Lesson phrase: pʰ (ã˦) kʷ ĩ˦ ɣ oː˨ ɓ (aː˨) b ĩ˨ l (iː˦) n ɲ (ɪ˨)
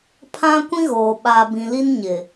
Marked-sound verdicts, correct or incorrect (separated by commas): correct, correct, incorrect, correct